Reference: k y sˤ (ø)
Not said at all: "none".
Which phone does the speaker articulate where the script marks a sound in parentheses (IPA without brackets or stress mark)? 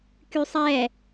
ɛ